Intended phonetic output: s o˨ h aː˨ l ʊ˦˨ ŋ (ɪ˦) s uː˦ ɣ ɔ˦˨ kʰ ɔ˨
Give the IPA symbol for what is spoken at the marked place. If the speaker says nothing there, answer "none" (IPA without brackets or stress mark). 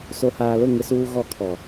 ɪ˦